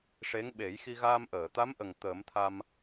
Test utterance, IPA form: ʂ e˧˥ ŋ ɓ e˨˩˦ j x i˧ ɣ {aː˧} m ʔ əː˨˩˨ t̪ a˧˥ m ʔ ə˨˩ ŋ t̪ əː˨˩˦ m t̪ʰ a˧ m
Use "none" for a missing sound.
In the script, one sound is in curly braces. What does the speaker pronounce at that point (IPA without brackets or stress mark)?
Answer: aː˧